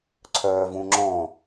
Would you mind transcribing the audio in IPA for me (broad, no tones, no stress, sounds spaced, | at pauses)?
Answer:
ǀʰ œː v ũ ŋ͡ǁ ɔ̃